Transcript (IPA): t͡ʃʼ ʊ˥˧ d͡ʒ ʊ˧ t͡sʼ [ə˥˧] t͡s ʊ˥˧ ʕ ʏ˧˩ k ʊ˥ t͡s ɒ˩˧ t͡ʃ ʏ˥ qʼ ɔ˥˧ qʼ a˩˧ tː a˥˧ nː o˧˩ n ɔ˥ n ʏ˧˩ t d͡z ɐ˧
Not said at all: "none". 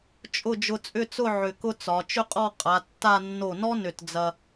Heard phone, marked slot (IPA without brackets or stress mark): ʏ˥˧